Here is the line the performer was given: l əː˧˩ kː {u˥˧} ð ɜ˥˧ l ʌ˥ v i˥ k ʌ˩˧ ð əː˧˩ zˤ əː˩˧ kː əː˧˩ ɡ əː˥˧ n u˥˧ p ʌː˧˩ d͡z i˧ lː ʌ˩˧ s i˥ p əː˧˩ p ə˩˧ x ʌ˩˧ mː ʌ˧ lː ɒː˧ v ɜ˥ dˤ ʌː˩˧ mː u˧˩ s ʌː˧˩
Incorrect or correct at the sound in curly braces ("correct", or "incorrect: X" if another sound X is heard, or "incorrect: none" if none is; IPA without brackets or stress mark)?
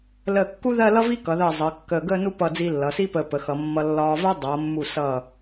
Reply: incorrect: u˥